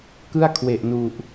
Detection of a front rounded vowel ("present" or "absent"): absent